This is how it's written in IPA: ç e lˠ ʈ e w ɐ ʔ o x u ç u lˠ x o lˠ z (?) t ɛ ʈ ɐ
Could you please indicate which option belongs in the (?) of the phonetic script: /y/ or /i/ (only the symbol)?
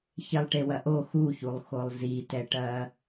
i